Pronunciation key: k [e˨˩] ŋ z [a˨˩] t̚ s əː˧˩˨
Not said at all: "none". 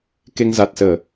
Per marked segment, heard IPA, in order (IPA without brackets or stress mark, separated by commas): e˧, a˨˩